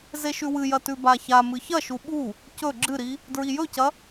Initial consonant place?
alveolar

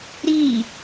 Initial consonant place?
alveolar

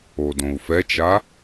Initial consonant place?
alveolar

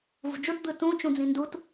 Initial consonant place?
labial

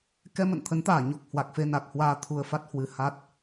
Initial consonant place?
velar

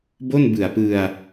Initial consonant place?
labial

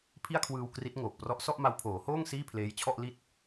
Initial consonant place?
labial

